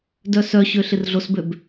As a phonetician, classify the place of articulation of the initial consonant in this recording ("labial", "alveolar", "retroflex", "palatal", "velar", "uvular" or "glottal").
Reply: alveolar